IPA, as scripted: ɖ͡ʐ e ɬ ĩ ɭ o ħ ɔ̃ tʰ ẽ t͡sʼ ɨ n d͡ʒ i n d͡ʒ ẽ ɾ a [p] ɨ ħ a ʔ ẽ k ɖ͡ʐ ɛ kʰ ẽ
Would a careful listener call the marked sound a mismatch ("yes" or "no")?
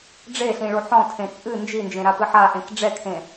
no